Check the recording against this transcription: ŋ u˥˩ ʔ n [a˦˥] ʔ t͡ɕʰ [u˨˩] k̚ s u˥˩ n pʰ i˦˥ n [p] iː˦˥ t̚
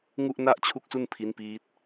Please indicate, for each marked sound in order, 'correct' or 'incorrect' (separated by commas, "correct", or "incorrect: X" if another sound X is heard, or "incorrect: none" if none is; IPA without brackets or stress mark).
incorrect: a˥˩, incorrect: u˥˩, correct